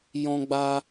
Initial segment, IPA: j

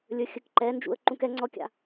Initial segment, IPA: lʲ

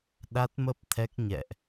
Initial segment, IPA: ɗ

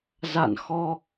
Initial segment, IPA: z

